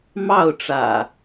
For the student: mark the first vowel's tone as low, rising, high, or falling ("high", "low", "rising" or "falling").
falling